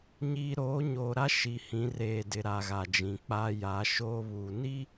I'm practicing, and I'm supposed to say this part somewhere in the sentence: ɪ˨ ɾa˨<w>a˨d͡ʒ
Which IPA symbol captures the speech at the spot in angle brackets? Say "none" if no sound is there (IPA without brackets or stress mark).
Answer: ɣ